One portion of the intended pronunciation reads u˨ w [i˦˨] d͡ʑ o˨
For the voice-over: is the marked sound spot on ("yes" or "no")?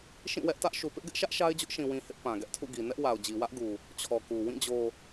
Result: no